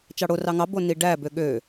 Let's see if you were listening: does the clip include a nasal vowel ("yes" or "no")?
no